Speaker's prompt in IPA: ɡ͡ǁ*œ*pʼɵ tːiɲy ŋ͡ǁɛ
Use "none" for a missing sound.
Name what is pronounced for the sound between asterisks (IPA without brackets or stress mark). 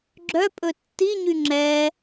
œ